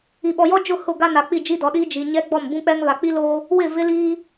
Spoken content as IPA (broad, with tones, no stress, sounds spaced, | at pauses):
i˨ ɓ ɔ˨ j ɔ˦ d͡ʒ ʊ˦˨ h ʊ˦˨ ɡ a˦ n a˨ k͡p i˦˨ d͡ʒ i˦ d ɔ˨˦ ɗ iː˦ d͡ʒ i˨ ɲ ɛ˦ ɡ͡b ɔ˦˨ m b ũ˦ k͡p ɛ˦ ŋ β a˨ k͡p i˦ l oː˦ | w ɪ˦˨ v ɪ˦ l iː˦